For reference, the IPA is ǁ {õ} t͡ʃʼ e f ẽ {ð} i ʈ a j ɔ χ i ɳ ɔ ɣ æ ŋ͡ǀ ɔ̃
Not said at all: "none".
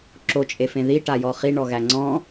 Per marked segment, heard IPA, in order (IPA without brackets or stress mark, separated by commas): o, ð